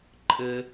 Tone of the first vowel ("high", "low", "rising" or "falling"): high